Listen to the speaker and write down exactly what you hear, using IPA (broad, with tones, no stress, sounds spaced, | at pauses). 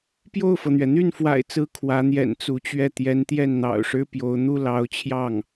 p j o˥˩ ʊ̯ f ɤ˩ n̪ ɥ ɛ˩ n̪ y˥˩ n f w a̰˨˩ ɪ̯ t͡s ɹ̩˧˥ kʰ w ä˧˥ n̪ j ɛ̰˨˩ n t͡s u˧˥ t͡ɕ ɥ ɛ˥˩ t̪ j ɛ˧˥ n t̪ j ɛ˥˩ n n̪ ɑ̰˨˩ ʊ̯ ʂ ɻ̩˥ p j o˧˥ ʊ̯ n̪ u˥ l ɑ˧˥ ʊ̯ t͡ɕʰ j ɑ˥˩ ŋ